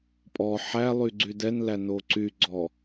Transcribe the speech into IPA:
pʼ ɔ ħ æ lˠ y ɡ͡ǀ y d ɛ n l æ n o ǀ y ɡ͡ǀ ɔ

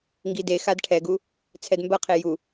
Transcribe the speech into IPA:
ŋ ɡ i d e x a d ʈʰ ɛ ɡ u | t͡sʰ ɛ d m b ɐ qʰ e j u

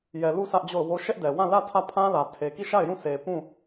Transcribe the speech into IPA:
j ɛ˨ l u˦˨ s ä˦ ʔ d͡ʑ o˦˨ ʊ̯ w o˦ ʃ ɛ˦ ʔ d ɛ˨ w ã˦˨ l ä˦˨ tʰ ä˦˨ pʰ ã˦ l ä˨ tʰ e˨ k i˦˨ ʃ a˦˨ ɪ̯ j ũ˦˨ sʰ e˨ p ũ˦˨

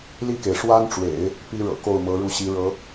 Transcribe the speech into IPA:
l i˥˩ k e˩ ɪ̯ ʂ w a˥ n ʈ͡ʂ w ḛ˨˩˦ ɪ̯ | p i˥ ɻ ɤ̰˨˩ k o˥˩ ʊ̯ m ɤ˧˥ ɻ u˥˩ ɕ i˧˥ ɻ ɤ˧˥

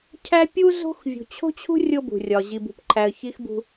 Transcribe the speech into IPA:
cʰ æ˦ pʲ u˦ z o̤˦ x vʲ ṳ˨ t͡ɕʰ o̤˦ t͡ɕʰ ṳ˦ rʲ o˦ b ṳ˨ rʲ ɒ˨ ʑ i˨ b ṳ˨ p ǃʰ æ˨ ə̯ ç i˦ x b ṳ˦

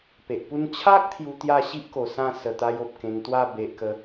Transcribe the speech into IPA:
p e˨ ʔ p u˦ n t͡ɕʰ a˦ k̚ t̪ʰ j u˧ t̪ j a˥˧ ɕ i˦ ʔ k o˨˩ s ã˥˧ s ə˨˩ t̪ a˧ j o˨ p̚ k ẽ˧ ŋ t̪ w a˥˧ b e˨ ʔ k ə˨˦

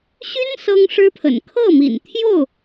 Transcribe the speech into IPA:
ɕ y˥ n s ɤ˥ ŋ ʂ ɻ̩˥ pʰ ə̰˨˩ n kʰ ɤ˥˩ m ḭ˨˩ n t̪ʰ j o˥˩ ʊ̯

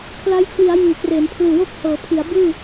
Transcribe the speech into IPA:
kʰ l a˦˥ j kʰ w i˩˦ a̯ j iː˨˩ k r eː˩˦ n pʰ l ɯː˨˩ w o˥˩ k̚ h ɤː˩˦ pʰ i˩˦ a̯ b ɯː˥˩

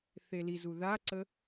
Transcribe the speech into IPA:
θ e l i z u ð a ǀ ə

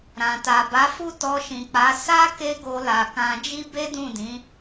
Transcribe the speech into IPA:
ɾ ã˨ t a˨ b a˨˦ f u˦˨ t ɔ˧ ʃ ĩ˨ k͡p a˨˦ s a˦ k e˦ ɡ o˧ l a˨ k ã˧ d͡ʒ i˦ b e˦ d ũ˦˨ d ĩ˨˦

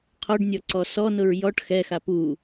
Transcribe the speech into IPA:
qʰ ɔ ɖ nʲ ɔ ǀ ɔ s ɔ n ʊ ɹ j ɔ ʈ x ɛ x a p u

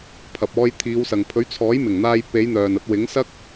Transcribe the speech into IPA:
pʰ ɐ˨ p̚ ɔː˧ j t̪ʰ iː˨˧ w s ɐ˨ ŋ pʰ ɵ˨˥ ɥ t͡sʰ ɔː˨˥ j m ɪ˨˩ ŋ n̪ aː˧ j p e˨˧ j n̪ œː˨ n ɐ˧ t̚ w ɪ˨˥ ŋ s ɐ˥ k̚

